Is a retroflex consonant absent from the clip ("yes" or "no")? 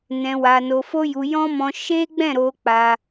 yes